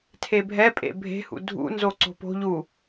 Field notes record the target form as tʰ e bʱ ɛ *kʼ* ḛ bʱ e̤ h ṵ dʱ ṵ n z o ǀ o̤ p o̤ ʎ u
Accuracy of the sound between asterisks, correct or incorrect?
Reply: incorrect